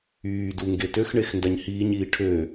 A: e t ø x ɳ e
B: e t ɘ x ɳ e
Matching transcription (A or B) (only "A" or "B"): A